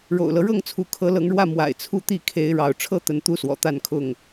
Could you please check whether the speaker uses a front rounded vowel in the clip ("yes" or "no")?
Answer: no